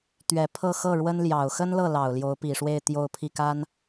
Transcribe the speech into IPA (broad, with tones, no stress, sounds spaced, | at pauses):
t̪ ɥ ɛ˨˩ pʰ ɤ˥˧ x ɤ˥˩ ɻ w ə˥ n l j ɑ˨˩ ʊ̯ x ə˥ n l ɤ˥˩ l ɑ˨˩ ʊ̯ l j o˧˥ ʊ̯ p i˨˩ ʂ w e˥˧ ɪ̯ t̪ j o˥˧ ʊ̯ pʰ i˥˩ k a˥ n